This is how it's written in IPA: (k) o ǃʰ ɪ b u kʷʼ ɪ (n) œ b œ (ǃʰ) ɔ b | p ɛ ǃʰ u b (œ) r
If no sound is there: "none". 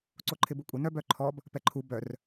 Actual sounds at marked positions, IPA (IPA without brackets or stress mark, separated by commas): ǀ, n, ǃʰ, œ